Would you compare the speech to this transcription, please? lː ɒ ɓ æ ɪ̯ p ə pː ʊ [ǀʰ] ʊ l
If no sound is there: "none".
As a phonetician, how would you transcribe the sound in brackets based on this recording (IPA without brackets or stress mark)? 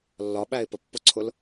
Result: ǀʰ